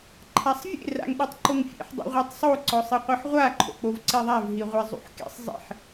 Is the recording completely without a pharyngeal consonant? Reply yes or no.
no